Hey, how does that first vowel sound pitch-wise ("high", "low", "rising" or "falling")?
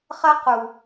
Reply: high